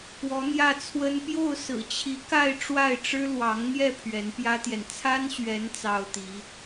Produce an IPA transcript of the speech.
k w ɔ˧˥ n̪ j ä˥˩ t͡sʰ w ə˥ n p j o˥˩ ʊ̯ s ɹ̩˨˩ t͡ɕʰ i˧˥ k a˥˧ ɪ̯ ʈ͡ʂ w a˥˩ ɪ̯ ʈ͡ʂ ɻ̩˥ l w ɑ˧˥ ŋ n̪ j ɛ˥˩ pʰ ɥ ɛ˧˥ n p j ä˥ t̪ j ɛ˨ n t͡sʰ a˥ n ɕ ɥ ɛ˧˥ n t͡s ɑ˥ ʊ̯ t̪ i˧˥

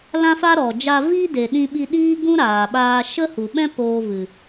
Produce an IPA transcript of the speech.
l ã˦ f a˦ ɾ ɔ˨ d͡ʒ a˧ v i˦ d e˨ ɗ ĩ˧ ɓ i˧ ɗ iː˦ ɡ ũ˦ ɾ aː˨ ɓ aː˧ ʃ ə˦ h u˨ ɓ ɛ̃˦ p oː˧ v ɨ˨

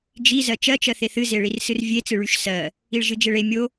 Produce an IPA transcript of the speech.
d͡ʒ i z ɜ t͡ʃ ɜ t͡ʃ ɜ θ e θ ɨ z e ɭ i r s ɨ r vʲ e t͡s ɨ ɭ y ʃ s ɜ | i ɭ ʒ ɨ d͡ʒ e ɭ e mʲ o

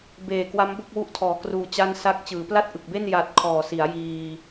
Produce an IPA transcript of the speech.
b eː˨˩ k w a˦˥ m b o˥˩ k̚ w u˦˥ ʔ tʰ ɔː˩˦ k r uː˨˩ t͡ɕ a˥˩ n s a˥˩ k̚ t͡ɕ ɯː˩˦ p l a˥˩ t̚ ʔ ɯ˨˩ k̚ b e˥˩ n j a˨˩ t̚ kʰ ɔː˨˩ s i˩˦ a̯ j iː˧

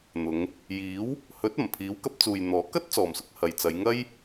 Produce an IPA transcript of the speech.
n̪ ʊ˨˧ ŋ | j iː˨˥ w | h ɵ˨˥ t̚ ɐ˨˩ m pʰ iː˨˥ w k ɐ˨˥ p̚ t͡s uː˨ j n̪ ɔː˨˥ k ɐ˥ t̚ t͡s ɔː˨ m s ʊ˨˥ k̚ h ɐ˨ j t͡s ɐ˨˧ j ŋ ɐ˥ j

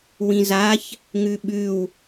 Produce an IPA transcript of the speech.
w ĩ z a ç | ŋ ʉ ɓ ʉ w

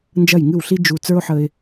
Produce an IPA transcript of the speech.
n d͡ʒ ɐ˥˩ j ŋ ɨ˥˩ w ɬ i˥ d͡ʒ u˧ t͡s ə˞˥ ʊ̯ ħ ə˧ ɪ̯

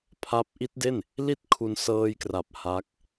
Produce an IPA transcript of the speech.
pʰ a˦˥ p̚ ʔ i˦˥ t̚ d e˥˩ n | l i˥˩ t̚ kʰ u˧ n s ɤː˧ j k r a˨˩ p̚ h a˦˥ k̚

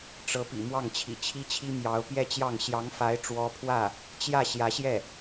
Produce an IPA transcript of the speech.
ʈ͡ʂ ɤ˧˥ p ḭ˨˩ m w ɑ˥˩ ŋ t͡ɕʰ ḭ˨˩ t͡ɕʰ i˥ t͡ɕʰ i˥ m j ɑ˧˥ ʊ̯ p j ɛ˥˧ t͡ɕ j ɑ˥˩ ŋ ɕ j ɑ˧˥ ŋ f a˧˥ ɪ̯ ʈ͡ʂ w ɔ˥ pʰ w ä˥˩ | t͡ɕ j ä˥˩ ɕ j ä˧˥ ɕ j ɛ˥˩

